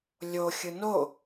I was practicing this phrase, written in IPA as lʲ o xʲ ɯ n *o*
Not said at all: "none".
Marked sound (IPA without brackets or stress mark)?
o